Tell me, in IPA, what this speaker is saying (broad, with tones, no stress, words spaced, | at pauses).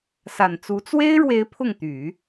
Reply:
sa˨˩nt͡su˧˥ t͡swe˥ɪ̯ɻwe˧˥ɪ̯ pʰʊ˥˩ŋt̪y˨˩˦